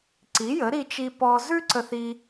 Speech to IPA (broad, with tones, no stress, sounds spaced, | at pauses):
ǀ i˩˥ j ə˩˥ ɾ i˧ t͡ʃ i˧ p ɔ˧ z ʉ˥ ǀ ə˧ θ i˧